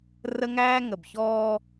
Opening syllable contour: high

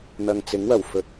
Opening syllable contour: low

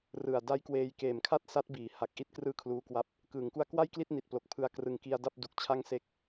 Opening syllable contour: low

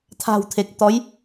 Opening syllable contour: low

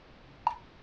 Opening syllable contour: high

